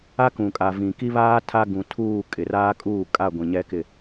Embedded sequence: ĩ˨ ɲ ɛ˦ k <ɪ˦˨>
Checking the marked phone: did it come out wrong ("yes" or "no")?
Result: no